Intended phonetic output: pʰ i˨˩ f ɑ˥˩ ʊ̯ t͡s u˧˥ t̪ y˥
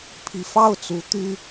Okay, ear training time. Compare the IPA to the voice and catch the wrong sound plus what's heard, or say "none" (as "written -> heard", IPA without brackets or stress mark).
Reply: none